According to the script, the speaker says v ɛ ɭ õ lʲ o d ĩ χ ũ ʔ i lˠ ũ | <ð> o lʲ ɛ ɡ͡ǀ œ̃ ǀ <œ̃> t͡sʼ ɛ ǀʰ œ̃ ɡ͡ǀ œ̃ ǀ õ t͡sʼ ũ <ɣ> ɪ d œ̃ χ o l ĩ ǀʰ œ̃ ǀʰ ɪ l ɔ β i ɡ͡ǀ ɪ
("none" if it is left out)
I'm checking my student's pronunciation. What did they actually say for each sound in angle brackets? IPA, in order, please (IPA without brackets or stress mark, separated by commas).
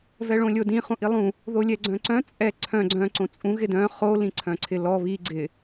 ð, œ̃, ɣ